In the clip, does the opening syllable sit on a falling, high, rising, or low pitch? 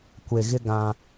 low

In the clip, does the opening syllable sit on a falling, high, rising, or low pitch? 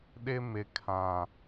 high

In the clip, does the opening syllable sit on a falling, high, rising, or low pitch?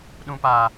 low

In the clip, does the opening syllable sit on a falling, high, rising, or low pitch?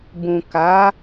low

